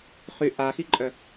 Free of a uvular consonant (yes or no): no